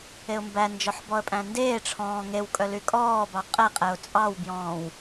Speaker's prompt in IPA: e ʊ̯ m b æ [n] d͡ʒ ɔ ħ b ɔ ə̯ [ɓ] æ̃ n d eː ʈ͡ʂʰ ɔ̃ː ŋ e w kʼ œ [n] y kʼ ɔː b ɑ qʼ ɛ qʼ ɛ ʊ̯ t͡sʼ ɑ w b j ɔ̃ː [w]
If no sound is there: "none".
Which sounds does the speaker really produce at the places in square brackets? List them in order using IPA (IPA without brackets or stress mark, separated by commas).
n, pʼ, l, w